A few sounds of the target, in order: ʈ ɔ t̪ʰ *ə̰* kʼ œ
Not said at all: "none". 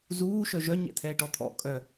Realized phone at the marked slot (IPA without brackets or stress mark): ɔ̰